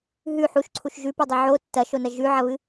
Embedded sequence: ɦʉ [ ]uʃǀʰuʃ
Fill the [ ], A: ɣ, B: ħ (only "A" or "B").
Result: B